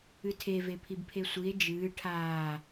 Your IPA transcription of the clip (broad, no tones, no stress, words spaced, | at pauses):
ɨtʰe vepʰibpʰesʷie̯ d͡ʒɨː ʈʰaː